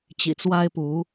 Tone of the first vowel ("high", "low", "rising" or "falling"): low